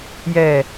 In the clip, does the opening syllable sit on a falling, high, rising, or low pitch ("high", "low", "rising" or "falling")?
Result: low